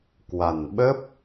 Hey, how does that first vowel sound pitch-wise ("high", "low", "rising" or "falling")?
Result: low